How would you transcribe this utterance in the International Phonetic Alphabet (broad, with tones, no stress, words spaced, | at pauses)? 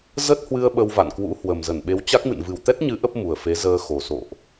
zə˦˥t̚hwɨ˧ə̯ ɓə˧wva̰˧˨nkwṵ˧˥hwə˨˩m zə˧˩nɓe˨˦wt͡ɕa˦˥k̚mɨ̰˧˨n vɨ˨˩wt̪ɛ˦˥t̚ɲɨ˨˦ ʔə˦˥p̚mu˨˩ə̯fe˨˦ zəː˧xo˨˩ so̰˧˨ʔ